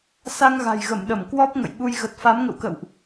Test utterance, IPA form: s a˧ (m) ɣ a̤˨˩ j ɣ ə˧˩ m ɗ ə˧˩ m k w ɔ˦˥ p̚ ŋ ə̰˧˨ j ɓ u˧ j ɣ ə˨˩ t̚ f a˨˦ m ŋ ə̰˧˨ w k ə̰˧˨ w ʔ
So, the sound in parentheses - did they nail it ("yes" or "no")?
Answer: no